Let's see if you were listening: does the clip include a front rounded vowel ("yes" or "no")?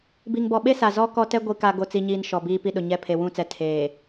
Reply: no